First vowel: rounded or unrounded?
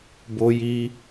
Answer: rounded